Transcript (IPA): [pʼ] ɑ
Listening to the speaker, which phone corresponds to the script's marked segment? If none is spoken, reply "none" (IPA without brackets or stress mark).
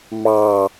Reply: m